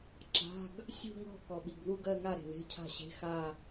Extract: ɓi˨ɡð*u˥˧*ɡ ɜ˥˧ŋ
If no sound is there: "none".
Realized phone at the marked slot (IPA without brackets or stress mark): u˥˧